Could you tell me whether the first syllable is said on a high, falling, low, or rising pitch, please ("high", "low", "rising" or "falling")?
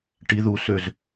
rising